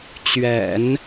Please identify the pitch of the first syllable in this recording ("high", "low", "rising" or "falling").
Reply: low